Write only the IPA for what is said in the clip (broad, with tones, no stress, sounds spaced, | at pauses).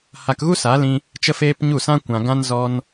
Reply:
h a˧ k ɣ u˦ s a˨˦ l ĩ˧ | t͡ʃ ə˦ f eː˦ p ɲ u˦˨ s ã˦ kʷ ã˧ ɡ ã˦ n z ɔ˦ n